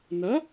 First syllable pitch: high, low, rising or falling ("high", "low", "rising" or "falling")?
rising